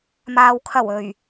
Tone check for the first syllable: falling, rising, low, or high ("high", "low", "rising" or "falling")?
low